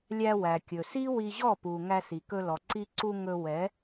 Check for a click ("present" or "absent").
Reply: present